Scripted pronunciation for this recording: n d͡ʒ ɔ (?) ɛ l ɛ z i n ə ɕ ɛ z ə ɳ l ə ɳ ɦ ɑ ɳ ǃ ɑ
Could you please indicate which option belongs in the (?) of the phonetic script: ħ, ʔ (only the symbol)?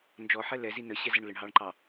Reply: ħ